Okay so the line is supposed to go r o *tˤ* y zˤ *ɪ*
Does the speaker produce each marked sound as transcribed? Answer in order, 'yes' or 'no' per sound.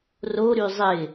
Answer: no, yes

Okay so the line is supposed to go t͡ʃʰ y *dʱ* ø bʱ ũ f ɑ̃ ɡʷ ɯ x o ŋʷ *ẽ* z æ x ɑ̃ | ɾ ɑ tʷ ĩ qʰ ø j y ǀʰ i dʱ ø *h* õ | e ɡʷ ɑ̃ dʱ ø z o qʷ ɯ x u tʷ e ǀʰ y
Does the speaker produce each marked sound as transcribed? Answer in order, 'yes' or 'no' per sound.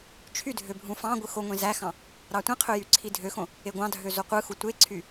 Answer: yes, yes, no

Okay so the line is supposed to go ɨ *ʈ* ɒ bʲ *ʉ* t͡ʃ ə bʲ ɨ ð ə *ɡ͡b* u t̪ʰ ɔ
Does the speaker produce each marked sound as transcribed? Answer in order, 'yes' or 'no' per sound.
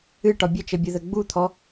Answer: yes, no, yes

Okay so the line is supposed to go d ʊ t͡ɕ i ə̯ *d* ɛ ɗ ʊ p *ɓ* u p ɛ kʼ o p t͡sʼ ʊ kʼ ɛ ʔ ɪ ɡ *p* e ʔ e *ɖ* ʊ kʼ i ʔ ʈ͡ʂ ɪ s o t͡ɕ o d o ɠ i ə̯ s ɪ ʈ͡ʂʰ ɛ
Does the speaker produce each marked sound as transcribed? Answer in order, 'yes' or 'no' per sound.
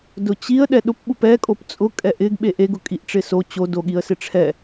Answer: no, yes, no, no

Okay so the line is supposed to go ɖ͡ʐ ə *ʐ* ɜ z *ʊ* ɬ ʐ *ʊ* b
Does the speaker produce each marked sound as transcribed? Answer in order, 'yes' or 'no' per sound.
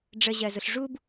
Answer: no, yes, no

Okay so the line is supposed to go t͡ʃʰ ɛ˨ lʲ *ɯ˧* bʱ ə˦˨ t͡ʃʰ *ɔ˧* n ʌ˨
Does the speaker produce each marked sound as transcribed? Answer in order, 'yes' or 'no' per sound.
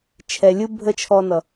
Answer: yes, yes

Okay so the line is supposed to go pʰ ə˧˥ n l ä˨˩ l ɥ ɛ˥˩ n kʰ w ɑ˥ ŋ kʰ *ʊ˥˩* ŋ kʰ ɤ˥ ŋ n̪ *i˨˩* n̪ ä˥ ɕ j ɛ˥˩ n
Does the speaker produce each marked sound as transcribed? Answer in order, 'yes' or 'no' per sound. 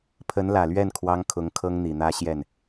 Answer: no, yes

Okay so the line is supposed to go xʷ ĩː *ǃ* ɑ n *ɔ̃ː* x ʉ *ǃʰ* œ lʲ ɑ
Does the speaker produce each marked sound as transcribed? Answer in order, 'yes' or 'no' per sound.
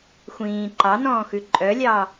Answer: yes, yes, no

